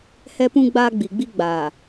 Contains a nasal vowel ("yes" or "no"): yes